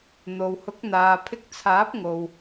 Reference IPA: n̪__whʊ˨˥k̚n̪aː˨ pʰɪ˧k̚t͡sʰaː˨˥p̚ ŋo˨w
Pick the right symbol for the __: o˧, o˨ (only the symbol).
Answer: o˨